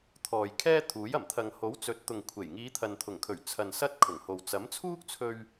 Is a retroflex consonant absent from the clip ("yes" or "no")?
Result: yes